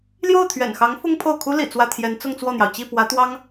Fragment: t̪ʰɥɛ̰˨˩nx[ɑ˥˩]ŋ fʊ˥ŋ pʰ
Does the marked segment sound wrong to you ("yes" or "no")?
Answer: yes